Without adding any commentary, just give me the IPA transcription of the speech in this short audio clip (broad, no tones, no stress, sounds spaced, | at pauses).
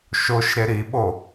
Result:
ʃ o ʃ ɾ e ɾ i ɓ o